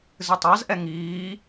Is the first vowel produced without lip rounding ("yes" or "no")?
yes